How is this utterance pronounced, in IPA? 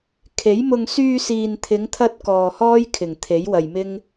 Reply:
kʰe˨˥jmʊ˧ŋ syː˧siː˨nt̪ʰɪ˨˧ŋt̪ʰɐ˧t̚ kɔː˨hɔː˥j kʰɪ˨˩ŋt̪ʰe˨˥jwɐ˨jmɪ˥ŋ

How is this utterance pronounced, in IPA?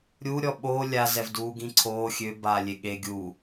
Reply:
ɾʲu ɾʲɔɓoː lʲa zɛvduːɡĩǀʰoː xʲø baːlʲeɠe ɡʲu

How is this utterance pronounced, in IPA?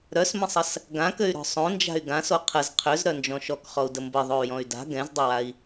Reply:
ɾœsmə̃sˤəs | ɡãkøy̯ɾɔ̤ sˤõnd͡ʒa̤y̯ ɡãso qʰəz qʰøzɾœnd͡ʒɔ̃ ʃɔkχɔu̯də mbəðˤoy̯jɔ̃y̯ da̤ ɡɛ̃zdˤəwai̯

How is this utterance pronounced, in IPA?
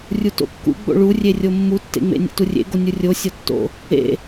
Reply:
rʲuto̰kːṵɡ͡bo̰ ɭurʲe rʲomːutːḛŋ͡mḛ nʲḛturʲḛɡo nʲurʲo sʲɒtːo̰ | ḛ

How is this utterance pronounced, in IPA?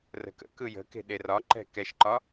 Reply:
rə̤kə̰kɯ jə̤ke̤ ɗerɒǃɛ̤ kɛʃǃɒ

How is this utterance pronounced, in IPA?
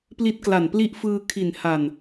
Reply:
pli˦˥t̚kla˨˩npli˦˥ʔfɯː˧ kʰi˨˩n ha˨˩n

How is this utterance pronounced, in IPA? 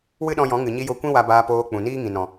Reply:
wɨ˦ɗɔ̃˧jɔ̃˨˦ ŋɨ˨ɲi˧jo˧kʷĩ˦ wa˧baː˧poː˧ k͡pũ˨niː˦ŋĩ˨ nɔ̃˨

